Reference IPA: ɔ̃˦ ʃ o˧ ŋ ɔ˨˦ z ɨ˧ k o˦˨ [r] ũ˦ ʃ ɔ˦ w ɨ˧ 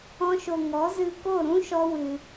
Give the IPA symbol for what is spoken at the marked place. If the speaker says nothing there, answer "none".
ɾ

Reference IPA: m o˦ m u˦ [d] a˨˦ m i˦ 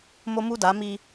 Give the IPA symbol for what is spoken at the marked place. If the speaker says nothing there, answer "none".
d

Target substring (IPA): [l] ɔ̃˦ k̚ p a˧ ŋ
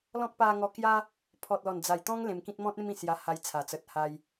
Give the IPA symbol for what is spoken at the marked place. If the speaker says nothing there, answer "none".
l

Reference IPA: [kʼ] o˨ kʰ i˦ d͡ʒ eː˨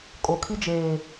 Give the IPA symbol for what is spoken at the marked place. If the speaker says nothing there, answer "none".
kʼ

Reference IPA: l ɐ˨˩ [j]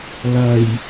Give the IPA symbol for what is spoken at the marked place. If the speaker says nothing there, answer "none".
j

